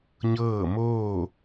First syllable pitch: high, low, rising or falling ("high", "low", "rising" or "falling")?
falling